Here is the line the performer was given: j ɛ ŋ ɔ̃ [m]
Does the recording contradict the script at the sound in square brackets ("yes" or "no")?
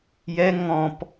yes